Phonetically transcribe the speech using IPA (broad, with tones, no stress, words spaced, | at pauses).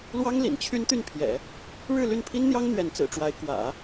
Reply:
lwɑ˥ŋ lḭ˨˩nt͡ɕʰy˥nt̪y˥˩npʰjɛ̰˨˩˦ | ɻɻ̩˥˧ly˥˩npʰi˥nn̪jɑ˥ŋ n̪ɥɛ˧˥nt͡sɹ̩˨˩ʈ͡ʂwa˧˥ɪ̯ kwä̰˨˩˦